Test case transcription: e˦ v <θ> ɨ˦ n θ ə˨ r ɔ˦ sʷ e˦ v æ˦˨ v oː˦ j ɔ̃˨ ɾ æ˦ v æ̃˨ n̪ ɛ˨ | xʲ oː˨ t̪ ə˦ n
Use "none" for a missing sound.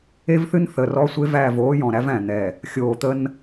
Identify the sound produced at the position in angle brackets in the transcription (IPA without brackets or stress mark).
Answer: θ